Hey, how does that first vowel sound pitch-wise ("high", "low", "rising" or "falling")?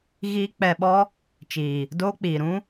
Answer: high